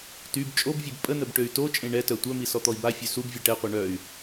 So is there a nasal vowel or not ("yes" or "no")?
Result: yes